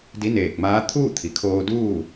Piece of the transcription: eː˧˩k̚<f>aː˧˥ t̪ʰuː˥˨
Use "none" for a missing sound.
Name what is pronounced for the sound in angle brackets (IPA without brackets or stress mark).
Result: m